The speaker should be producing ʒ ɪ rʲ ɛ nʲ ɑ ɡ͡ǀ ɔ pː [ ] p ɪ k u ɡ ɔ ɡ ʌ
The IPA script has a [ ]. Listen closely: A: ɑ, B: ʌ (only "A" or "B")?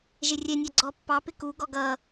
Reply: A